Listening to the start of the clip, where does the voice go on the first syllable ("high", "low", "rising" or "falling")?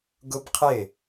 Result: high